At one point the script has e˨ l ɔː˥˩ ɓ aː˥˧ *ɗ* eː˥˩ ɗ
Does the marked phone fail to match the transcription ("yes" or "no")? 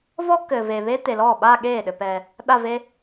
yes